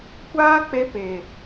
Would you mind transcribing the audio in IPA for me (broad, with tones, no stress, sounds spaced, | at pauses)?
kʷ aː˦ k͡p e˧ p e˨